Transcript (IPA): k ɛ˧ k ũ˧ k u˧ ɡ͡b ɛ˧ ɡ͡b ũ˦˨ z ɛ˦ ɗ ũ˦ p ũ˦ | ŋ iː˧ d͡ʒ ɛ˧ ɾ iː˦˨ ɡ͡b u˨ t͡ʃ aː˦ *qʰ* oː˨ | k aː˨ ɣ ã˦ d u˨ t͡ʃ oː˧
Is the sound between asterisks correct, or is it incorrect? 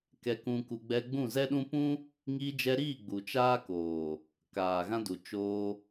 incorrect